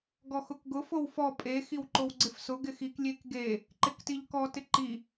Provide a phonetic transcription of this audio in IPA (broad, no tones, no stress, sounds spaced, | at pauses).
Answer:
ɡ ɔ x ʊ k ɡ ʊ f o w f ɔ pʼ e x i w ǃ o w ɡ͡ǀ ɪ f s ʊ ɡ ɪ x i k lʲ e k ɡ e | ǃ ɪ k t i ʎ k ɔ t ɪ ǃ i